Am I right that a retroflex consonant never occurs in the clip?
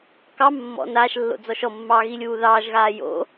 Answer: yes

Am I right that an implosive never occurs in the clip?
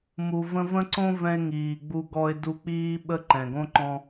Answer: no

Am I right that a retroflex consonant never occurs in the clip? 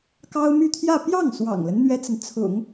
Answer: yes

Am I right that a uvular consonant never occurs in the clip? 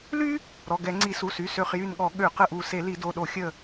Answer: no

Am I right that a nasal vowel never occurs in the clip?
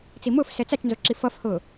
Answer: yes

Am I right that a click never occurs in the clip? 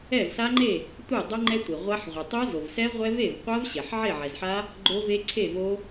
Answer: no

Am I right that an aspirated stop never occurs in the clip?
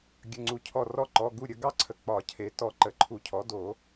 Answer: no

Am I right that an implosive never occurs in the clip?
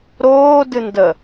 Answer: yes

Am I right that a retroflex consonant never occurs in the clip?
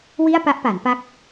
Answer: yes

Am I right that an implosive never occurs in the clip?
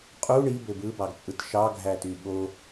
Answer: no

